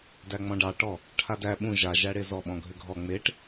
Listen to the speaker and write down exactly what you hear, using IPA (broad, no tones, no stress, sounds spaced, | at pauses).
d æ ŋ͡m ɔ̃ ɖ ɑ ʈ ɔ | ʈʰ a d æ ɓ ũ ʒ a ʒ æ ɽ e z ɔ ɓ ɔ̃ ɡʱ ʏ ɡʱ ɔ ŋ͡m e ʈ